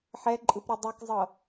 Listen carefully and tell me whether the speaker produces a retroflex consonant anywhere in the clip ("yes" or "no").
no